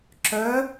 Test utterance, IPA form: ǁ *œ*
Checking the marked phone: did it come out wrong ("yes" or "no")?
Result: no